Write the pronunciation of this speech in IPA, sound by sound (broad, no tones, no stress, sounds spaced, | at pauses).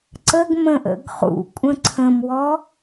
ǀ ə ɡ m ə̃ ʔ ə̰ ɡ χ ṵ kʷʼ ə̃ ǀʰ ə̃ m w ɔ